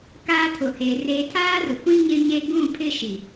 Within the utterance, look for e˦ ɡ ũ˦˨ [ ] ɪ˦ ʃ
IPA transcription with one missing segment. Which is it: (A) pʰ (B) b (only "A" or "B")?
A